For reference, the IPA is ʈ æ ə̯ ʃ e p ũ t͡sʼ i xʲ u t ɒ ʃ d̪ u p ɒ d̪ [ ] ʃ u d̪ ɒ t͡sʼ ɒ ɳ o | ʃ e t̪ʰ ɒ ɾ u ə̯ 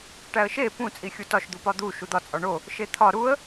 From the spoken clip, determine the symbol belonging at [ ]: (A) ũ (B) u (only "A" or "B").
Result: B